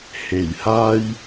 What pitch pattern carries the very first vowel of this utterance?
low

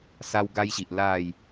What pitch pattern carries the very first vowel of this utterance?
high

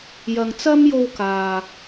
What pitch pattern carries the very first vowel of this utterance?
low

